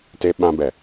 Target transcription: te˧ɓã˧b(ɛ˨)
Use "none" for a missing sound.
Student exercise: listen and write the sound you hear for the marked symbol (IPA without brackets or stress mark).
ɛ˨